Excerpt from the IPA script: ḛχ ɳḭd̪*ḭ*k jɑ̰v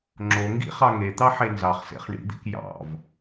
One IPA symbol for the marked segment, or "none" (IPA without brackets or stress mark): ḭ